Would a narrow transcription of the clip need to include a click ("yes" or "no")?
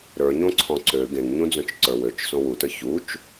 yes